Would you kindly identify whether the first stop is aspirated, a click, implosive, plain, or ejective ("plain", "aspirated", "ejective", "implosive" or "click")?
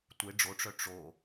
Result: plain